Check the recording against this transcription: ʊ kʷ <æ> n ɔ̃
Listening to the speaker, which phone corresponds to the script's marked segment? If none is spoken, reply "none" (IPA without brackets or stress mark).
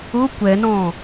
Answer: ɛ